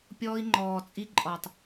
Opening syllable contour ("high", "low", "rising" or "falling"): high